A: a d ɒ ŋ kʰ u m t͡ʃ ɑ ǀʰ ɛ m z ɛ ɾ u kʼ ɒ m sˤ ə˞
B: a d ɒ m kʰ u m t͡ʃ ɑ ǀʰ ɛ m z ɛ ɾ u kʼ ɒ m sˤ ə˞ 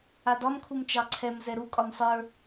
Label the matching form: B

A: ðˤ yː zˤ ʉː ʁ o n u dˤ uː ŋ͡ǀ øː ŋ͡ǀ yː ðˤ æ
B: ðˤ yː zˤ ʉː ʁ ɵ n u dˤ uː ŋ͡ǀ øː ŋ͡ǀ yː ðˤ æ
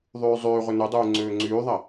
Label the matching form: B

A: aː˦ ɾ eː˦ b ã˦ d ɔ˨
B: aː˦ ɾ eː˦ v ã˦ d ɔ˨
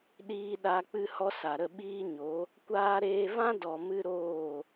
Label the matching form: B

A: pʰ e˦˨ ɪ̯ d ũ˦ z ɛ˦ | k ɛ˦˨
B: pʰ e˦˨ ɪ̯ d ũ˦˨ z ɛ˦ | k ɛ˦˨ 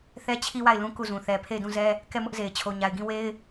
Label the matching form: B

